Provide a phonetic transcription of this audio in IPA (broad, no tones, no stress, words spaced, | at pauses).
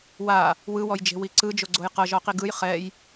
wa | wɯwɔjd͡ʒe̤wi ǀɯd͡ʒoɡ͡ǀoj qɤʒɔqi ɡɯj χɛj